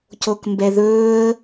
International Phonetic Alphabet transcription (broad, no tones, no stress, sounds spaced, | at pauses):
c o k m b ɛ ð ɵː ə̯